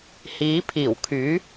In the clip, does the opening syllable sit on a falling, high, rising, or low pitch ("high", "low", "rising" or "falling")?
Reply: rising